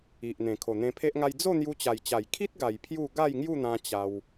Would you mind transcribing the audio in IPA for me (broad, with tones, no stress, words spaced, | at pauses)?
i˨ʔn̪ẽ˨˩ kʰo˨˩n̪ẽ˧pʰe˦ʔŋa˦j d͡zo˥˧n̪ju˧t͡ɕa˨˩jt͡ɕa˨˩j kʰi˦t̚ɡa˨˩j pʰju˥˧ ɡa˥˧jŋju˥˧n̪ã˧ t͡ɕa˧w